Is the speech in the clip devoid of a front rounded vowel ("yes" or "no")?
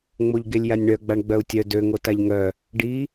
no